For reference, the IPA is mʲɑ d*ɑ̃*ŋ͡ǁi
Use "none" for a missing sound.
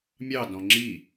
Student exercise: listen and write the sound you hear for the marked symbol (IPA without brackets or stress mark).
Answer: ɔ̃